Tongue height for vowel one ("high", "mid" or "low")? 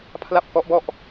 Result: low